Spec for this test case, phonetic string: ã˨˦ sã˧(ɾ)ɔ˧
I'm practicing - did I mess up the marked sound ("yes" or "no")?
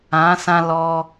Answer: yes